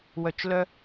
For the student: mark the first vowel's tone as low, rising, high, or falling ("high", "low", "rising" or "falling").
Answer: low